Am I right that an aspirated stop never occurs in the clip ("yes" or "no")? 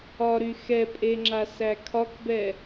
no